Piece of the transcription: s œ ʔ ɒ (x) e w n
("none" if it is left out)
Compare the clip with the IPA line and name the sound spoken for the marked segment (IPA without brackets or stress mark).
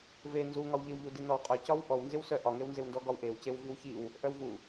ŋ